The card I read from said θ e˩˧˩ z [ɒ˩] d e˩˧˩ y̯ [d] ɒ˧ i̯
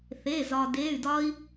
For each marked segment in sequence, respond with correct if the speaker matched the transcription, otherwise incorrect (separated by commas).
correct, correct